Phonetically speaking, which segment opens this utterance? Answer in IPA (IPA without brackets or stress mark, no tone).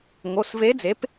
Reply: ŋ